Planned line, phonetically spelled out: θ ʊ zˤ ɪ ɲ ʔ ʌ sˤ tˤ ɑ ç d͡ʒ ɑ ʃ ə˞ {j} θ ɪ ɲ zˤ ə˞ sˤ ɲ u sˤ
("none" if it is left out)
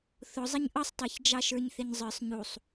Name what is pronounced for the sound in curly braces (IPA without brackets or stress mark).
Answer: ɲ